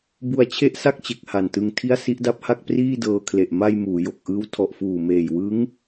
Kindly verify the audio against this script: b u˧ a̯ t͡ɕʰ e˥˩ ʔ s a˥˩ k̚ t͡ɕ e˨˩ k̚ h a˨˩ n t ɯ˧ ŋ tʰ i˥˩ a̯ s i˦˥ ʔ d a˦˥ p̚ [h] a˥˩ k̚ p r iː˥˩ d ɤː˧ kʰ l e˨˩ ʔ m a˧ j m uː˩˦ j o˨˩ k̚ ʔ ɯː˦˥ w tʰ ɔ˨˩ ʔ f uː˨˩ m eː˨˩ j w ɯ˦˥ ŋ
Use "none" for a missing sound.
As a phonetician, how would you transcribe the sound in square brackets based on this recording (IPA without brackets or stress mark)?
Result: h